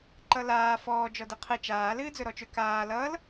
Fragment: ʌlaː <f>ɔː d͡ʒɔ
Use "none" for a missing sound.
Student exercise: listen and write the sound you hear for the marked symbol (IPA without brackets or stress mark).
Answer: f